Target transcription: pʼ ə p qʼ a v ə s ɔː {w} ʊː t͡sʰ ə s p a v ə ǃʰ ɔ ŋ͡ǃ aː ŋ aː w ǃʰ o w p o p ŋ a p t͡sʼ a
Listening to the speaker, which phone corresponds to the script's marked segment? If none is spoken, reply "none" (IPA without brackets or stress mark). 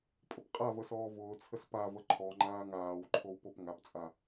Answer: v